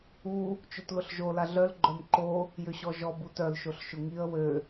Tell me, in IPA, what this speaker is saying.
u | t͡ʃotlʊɬʒo laɮœl ɡ͡ǃœmǃo | jʏɕɔʒɔ butœl ʃoɬʃʊŋiə̯ wø

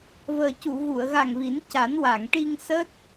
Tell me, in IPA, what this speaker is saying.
vəː˨˩ cu˨˩˨ɣu˨˩˨ə̯ɣa˨˩ŋ vi˨˩˦nca˨˩˦n wa˨˩˨ŋʈi˧ŋsəː˦˥t̚

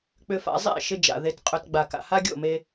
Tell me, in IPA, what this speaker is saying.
k͡pʏ˧fa̰˧zˤḛ˦˨ ʃɪ˧d͡ʒa̰˨ ðe˧tqʼɵ˧t ɡ͡ba˨ka̰˨ ha˦ɡʲo̰˦˨me˧

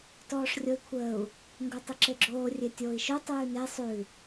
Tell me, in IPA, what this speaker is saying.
tɔːʂrʲoi̯kʷʰəːu̯ | ŋɡotˤəǁeɡ͡ǁoː rʲetʲoːi̯ʃo tˤʉːne sˤʉ

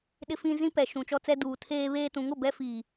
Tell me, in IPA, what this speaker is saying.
ɗɪ˦fĩ˦ zĩ˦ pɛ˨ʃũ˨t͡ʃɔ˦t͡sɛ˦ duː˨tʰeː˦βeː˦tũ˨˦ŋ ʊ˨bɛ˦ fiː˨

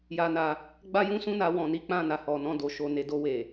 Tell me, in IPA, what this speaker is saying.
ja˧na˧ | ɡ͡ba˦jũ˦sũ˦na˧ wɔ̃˨ ni˨˦k͡pã˦˨na˨ hɔ˨nɔ̃˧do˨ ʃo˨ ne˨do˧ we˨

